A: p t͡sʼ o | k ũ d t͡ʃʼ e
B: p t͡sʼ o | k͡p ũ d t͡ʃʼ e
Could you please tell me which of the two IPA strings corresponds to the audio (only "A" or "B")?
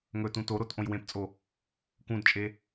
A